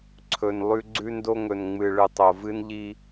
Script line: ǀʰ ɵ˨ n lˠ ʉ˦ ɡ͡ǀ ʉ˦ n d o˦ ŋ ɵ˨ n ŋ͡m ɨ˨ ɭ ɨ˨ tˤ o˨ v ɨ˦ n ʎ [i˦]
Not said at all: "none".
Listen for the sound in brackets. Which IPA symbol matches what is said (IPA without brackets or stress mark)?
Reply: i˦